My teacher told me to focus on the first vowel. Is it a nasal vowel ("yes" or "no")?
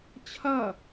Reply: no